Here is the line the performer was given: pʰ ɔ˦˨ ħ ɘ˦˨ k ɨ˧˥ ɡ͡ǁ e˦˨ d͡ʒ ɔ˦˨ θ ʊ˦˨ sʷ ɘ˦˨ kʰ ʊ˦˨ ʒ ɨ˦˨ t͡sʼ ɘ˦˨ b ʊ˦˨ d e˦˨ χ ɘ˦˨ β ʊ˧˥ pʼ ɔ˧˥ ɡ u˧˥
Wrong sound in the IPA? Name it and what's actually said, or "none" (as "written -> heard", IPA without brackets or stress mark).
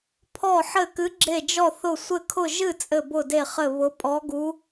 none